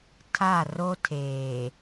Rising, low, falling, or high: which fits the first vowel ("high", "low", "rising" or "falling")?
falling